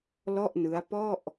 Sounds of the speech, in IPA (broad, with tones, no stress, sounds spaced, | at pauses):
l ɔ˥˩ ʔ n ɯ˦˥ a̯ p ɔ˥˩ ʔ